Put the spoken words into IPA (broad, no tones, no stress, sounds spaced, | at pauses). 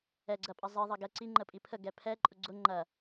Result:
ɛ ɡ͡ǀ ɐ pʼ ɐ zˤ i ðˤ ɐ ɡ ɛ ǀ i ŋ͡ǃ ə pʼ i pʰ ə ɡ ɛ pʰ ɛ ǃʼ ʊ ɡ͡ǀ ʊ ŋ͡ǃ ɐ